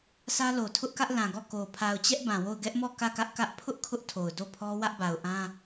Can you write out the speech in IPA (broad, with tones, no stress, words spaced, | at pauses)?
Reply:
sä˦lo˨ tʰʊ˦ʔkä˦ʔ lã˨ɡɔ˦˨ko˨ pʰa˨ʊ̯t͡ɕɛ˦ʔ bã˨wo˦˨ʊ̯ ɡɛ˦ʔmɔ˦˨ kä˦˨kä˦ʔkä˦ʔ pʰʊ˦ʔ kʰʊ˦ʔtʰo˨ʊ̯ do˦˨pʰɔ˦ wä˦ʔba˨ʊ̯ʔã˦